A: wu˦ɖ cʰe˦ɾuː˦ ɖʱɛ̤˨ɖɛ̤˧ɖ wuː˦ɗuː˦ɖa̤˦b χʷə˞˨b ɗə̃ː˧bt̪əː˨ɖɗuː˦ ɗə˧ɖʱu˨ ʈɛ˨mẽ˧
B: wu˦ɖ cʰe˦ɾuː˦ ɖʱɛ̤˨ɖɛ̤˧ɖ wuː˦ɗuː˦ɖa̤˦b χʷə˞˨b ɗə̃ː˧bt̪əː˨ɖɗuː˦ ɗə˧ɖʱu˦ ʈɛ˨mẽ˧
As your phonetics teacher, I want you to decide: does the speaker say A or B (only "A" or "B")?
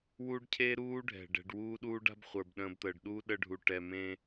A